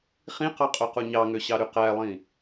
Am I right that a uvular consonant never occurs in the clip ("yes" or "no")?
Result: no